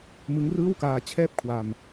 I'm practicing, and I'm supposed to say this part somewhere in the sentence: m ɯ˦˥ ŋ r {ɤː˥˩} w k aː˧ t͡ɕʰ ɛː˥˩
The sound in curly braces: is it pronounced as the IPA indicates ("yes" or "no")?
no